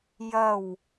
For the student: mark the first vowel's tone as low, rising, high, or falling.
low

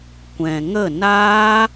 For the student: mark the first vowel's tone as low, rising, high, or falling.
low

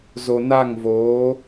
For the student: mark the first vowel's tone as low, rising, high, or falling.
low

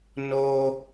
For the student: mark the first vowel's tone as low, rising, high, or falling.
high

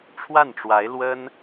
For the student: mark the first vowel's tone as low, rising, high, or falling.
falling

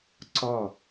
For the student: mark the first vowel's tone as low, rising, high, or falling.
falling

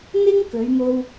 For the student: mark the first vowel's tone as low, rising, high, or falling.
high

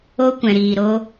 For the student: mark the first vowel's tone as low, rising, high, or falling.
high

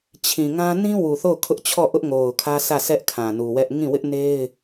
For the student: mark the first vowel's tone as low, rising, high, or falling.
low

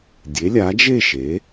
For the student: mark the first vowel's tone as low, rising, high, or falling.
rising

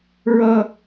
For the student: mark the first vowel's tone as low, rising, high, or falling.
high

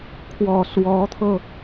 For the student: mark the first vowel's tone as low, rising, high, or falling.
low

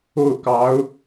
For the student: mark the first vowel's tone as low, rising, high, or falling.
falling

